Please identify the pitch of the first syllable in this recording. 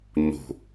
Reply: low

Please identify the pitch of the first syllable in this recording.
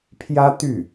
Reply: high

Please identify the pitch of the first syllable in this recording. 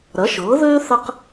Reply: rising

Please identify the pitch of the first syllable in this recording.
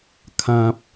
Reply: low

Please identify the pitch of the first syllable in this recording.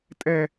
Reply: high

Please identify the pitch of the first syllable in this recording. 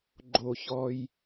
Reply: low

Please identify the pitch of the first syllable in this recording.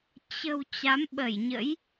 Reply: low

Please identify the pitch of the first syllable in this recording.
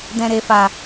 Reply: low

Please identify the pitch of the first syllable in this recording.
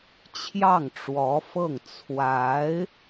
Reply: falling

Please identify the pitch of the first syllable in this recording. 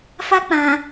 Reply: high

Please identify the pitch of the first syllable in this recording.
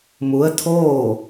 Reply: rising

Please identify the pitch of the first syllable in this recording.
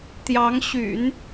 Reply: rising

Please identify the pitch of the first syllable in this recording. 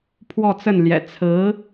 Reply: falling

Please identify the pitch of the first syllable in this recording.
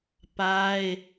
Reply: high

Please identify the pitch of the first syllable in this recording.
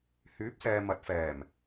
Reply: rising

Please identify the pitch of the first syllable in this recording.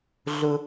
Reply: high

